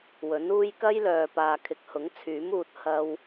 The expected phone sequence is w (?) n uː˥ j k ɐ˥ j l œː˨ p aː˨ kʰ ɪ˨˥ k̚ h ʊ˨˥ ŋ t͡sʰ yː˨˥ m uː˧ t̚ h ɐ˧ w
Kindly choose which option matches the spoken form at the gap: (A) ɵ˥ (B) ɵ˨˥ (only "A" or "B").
B